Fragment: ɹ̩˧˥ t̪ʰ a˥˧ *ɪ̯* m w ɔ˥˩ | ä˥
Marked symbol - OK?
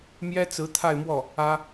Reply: yes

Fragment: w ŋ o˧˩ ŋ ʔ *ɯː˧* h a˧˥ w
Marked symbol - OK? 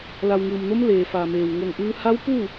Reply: yes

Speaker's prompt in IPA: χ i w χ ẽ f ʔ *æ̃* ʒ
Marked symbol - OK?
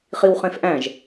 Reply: yes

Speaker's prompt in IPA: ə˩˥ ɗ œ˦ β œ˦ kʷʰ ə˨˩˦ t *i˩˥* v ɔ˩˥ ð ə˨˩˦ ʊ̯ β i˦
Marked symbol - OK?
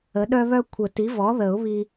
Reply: yes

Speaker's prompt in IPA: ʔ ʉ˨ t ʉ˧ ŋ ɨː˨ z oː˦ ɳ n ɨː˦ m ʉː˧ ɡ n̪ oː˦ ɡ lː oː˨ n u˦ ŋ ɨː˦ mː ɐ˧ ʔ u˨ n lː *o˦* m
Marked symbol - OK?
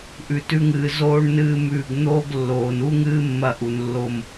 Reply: no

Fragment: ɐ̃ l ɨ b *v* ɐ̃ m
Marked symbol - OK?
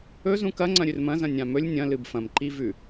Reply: no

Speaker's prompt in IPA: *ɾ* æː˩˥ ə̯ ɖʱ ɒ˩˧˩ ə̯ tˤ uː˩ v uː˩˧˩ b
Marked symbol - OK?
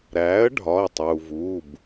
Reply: yes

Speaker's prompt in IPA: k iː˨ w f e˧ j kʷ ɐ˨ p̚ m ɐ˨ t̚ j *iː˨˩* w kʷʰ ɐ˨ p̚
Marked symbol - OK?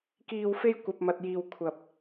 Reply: no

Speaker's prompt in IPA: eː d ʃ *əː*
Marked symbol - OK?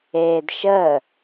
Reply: yes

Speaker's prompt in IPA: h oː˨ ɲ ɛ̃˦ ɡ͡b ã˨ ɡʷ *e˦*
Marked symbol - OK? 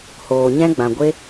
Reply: yes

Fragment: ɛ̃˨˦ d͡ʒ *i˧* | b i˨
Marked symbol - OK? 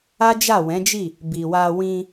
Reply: no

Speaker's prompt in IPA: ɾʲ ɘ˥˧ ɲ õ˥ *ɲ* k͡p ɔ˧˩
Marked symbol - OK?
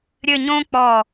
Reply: no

